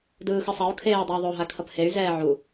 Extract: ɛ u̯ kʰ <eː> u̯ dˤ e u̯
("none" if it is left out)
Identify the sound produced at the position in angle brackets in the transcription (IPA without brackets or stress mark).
eː